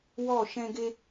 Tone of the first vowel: falling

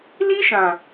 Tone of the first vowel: high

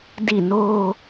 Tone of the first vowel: falling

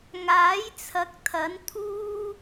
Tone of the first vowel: rising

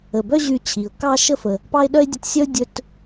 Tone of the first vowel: low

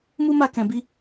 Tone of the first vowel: high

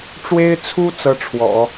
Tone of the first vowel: high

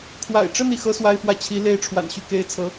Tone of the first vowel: low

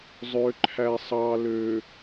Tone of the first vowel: low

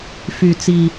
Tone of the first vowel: low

